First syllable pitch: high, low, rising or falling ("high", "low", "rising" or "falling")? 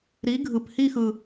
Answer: rising